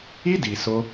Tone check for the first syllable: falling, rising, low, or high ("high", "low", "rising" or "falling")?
high